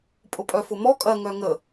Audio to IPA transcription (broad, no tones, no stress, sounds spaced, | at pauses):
pʼ ʊ pʼ œ f ʊ m ɔ kʼ ɐ ŋ œ ŋ ə